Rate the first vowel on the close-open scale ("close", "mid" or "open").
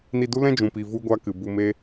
close